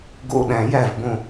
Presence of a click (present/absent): absent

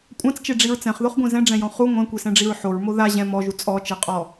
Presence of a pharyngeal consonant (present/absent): present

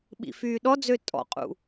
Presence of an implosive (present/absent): present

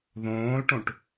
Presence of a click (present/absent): absent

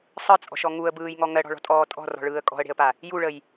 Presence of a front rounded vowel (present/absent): absent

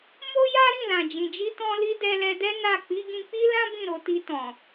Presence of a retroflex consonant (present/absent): absent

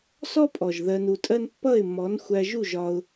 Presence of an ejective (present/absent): present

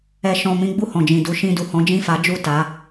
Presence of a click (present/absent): absent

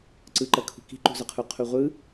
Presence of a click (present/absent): present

